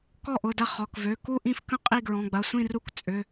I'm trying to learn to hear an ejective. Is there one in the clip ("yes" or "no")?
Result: yes